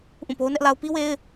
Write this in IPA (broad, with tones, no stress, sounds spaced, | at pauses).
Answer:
ʔ ũ˦˨ p o˦ ʊ̯ n ɛ˦ ʔ l a˦ ʊ̯ p i˦ w e˦ ɪ̯